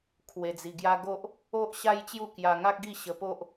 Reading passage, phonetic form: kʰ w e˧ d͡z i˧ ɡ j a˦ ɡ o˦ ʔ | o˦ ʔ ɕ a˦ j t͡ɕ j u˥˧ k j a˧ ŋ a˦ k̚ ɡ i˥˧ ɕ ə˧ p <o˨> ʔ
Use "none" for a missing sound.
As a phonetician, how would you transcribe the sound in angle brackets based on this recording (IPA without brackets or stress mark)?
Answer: o˦